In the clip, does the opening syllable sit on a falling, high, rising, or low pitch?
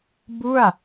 falling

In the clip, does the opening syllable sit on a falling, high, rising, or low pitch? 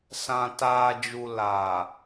low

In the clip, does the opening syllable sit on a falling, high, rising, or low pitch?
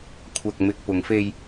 low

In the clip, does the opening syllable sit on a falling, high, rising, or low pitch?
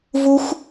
high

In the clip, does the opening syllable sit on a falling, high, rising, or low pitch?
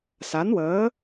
rising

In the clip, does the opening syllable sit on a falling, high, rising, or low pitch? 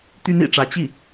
high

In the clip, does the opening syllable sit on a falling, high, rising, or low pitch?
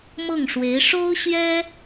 falling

